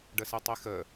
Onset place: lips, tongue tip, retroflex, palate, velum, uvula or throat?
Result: retroflex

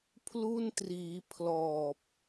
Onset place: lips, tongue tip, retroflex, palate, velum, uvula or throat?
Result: lips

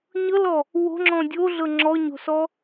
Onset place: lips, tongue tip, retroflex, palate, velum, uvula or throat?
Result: palate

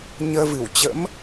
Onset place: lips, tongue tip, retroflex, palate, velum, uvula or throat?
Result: palate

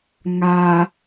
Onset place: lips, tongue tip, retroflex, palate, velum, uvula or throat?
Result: velum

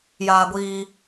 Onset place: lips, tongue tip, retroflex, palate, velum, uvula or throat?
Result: palate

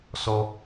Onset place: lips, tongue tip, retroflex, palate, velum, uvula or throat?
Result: tongue tip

